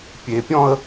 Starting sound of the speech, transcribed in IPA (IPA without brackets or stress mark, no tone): pʲ